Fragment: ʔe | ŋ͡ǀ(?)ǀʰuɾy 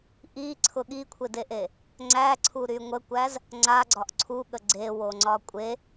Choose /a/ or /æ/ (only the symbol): æ